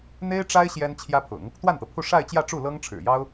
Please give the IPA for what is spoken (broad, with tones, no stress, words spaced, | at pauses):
n̪e˥ɪ̯ʈ͡ʂa˥ɪ̯ ɕjɛ˥nt͡ɕʰjä˥pʰʊ̰˨˩˦ŋ | t̪wa˥˩nt̪ɤ˩pʰu˥˧ ʂa˥˧ɪ̯t͡ɕjä˥˧ʈ͡ʂu˥˩ lɤ˥ŋʈ͡ʂʰɻ̩˨˩jɑ˥ʊ̯